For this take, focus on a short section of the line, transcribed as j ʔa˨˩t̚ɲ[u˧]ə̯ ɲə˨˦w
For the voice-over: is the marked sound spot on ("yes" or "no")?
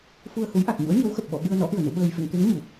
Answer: no